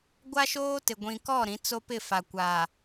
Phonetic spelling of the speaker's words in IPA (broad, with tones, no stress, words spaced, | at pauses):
ɡʷa˦ʃoː˦tɪ˨ ɡʷĩ˨kɔ˦˨ɾĩ˨˦ t͡so˦pɪ˦˨fa˨kʷaː˨